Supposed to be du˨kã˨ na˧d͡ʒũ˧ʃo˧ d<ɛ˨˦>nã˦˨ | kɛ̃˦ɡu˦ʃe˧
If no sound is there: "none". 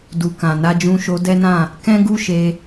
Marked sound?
ɛ˦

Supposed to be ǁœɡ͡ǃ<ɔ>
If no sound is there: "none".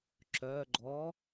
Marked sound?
ɔ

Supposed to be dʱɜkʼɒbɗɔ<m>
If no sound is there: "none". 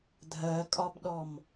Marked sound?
m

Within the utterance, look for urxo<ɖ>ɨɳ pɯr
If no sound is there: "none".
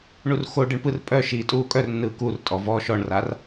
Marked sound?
ɖ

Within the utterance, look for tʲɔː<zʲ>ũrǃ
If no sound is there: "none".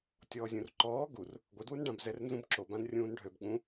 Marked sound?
zʲ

